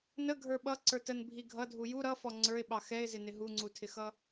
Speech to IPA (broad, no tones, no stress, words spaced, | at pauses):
nəɡʱə˞ ɓʌǀə˞ tənbʱi ɡʱʌdʱu ju ɾʌfɔ ŋ͡ǀə˞ɪ̯ɓɑ xɛɪ̯zɪnɪ ɦuŋ͡ǀutʰɪxʌ